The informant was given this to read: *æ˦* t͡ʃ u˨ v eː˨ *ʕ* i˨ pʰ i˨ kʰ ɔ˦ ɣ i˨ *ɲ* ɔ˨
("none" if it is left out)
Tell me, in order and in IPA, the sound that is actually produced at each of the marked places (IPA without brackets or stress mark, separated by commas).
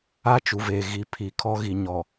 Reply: a˦, ɣ, ɲ